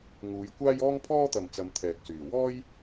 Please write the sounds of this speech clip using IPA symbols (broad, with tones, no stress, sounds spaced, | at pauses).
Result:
ŋ uː˨˧ j kʷ aː˥ j ɔː˥ ŋ pʰ ɔː˥ t̪ ɐ˨ m t͡s ɐ˨˧ m t̪ʰ ɛː˨ k̚ s yː˨˩ w ɔː˥ j